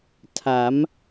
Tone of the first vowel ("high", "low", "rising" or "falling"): rising